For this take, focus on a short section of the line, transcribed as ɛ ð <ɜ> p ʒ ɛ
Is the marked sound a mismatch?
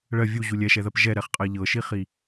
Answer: no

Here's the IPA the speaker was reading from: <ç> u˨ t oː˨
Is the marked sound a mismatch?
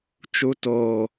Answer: yes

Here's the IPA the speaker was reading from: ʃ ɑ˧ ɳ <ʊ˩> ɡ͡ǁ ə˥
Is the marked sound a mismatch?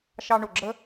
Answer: no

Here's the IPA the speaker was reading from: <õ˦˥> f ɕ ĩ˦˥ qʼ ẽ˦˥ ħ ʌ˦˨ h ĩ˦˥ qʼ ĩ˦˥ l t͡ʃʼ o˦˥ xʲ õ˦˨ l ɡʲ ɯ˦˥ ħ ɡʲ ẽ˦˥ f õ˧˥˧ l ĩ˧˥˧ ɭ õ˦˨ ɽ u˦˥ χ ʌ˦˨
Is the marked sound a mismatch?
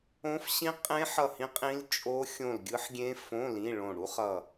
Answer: no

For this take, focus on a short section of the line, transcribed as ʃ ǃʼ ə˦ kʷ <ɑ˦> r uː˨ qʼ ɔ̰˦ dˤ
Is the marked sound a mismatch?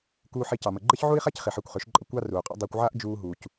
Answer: no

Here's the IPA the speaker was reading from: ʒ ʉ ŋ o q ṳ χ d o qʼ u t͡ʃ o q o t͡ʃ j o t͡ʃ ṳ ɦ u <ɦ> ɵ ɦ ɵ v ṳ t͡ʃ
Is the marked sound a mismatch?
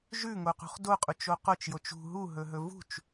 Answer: no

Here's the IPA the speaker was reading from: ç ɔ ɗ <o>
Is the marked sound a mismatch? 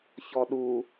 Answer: yes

